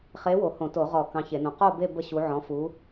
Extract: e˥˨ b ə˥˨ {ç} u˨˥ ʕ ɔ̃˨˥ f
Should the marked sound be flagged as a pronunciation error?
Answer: yes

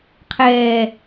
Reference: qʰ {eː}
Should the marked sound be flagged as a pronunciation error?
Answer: yes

